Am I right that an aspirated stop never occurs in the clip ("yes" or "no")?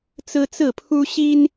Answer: no